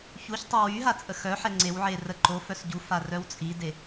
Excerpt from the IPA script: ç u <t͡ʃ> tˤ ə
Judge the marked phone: incorrect: ç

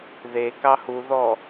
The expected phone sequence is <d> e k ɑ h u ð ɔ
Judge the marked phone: incorrect: ð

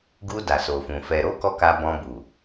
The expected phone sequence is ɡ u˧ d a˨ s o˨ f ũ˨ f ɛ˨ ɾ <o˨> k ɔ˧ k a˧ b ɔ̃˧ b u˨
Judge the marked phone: incorrect: o˨˦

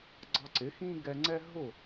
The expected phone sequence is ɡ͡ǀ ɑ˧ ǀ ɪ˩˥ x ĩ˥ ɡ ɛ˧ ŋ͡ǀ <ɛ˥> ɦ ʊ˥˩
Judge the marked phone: correct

